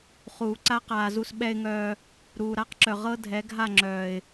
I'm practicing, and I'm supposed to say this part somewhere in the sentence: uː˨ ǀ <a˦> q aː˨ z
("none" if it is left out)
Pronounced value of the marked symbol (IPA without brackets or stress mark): a˦